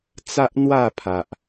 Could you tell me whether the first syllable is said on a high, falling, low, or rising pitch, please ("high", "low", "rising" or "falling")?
high